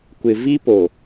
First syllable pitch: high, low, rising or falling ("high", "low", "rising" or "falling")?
low